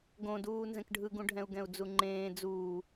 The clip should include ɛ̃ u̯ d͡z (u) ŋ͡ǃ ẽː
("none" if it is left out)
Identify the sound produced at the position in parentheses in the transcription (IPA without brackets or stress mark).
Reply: u